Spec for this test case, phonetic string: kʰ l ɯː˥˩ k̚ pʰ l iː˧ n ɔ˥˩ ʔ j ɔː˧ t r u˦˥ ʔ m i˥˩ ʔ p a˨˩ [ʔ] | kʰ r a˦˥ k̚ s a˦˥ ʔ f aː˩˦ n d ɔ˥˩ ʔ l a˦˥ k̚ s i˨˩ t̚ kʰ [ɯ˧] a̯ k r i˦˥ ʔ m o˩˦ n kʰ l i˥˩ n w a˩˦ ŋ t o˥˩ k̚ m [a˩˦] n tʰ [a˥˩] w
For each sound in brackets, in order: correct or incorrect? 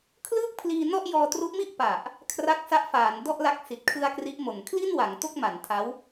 correct, correct, correct, incorrect: a˦˥

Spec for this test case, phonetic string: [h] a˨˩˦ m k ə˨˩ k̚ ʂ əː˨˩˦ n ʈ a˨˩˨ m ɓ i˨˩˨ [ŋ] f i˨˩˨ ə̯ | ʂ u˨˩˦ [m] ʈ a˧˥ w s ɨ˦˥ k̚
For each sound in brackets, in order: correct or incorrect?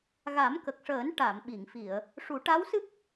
incorrect: ɣ, correct, incorrect: none

